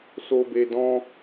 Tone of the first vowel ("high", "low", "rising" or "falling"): high